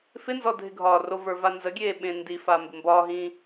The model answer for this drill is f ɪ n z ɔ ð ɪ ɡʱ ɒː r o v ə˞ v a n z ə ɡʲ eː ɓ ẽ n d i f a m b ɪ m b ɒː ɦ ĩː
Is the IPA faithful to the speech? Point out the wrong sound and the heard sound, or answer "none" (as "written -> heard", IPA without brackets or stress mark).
ð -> dʱ